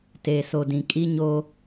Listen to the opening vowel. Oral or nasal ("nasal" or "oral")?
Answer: oral